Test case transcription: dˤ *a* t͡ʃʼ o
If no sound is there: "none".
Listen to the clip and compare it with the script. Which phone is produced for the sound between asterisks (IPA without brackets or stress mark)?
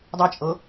a